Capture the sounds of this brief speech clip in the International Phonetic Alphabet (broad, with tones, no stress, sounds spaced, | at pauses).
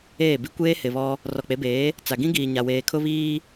eː˦˨ b i˦ kʷ eː˦ h ɪ˨ β ɔ˦ | r ɔ˨ k͡p e˨˦ b eː˨˦ | t͡s a˨ ɡ ĩ˦ ɡ iː˨ ɲ a˨ w eː˨ kʰ ʊ˦ β iː˦